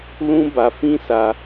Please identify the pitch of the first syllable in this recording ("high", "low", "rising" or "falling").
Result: high